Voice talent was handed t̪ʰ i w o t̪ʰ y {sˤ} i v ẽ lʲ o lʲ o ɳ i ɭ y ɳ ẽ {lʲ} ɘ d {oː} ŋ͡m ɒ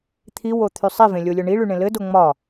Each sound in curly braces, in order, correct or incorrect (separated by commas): correct, incorrect, incorrect